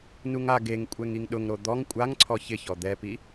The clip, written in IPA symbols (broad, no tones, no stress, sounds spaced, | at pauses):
n u ŋ a ɡ e ŋ kʷʼ ɛ ŋ i ŋ ɗ ʊ ŋ ɾ o d̪ ɔ ŋ kʷʼ a ŋ ǀʰ ɔ ç ɪ ç ɔ d̪ ɛ p i